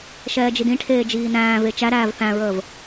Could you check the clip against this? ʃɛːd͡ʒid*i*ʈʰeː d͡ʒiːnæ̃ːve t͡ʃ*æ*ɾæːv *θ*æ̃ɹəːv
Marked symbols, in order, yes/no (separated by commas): no, yes, yes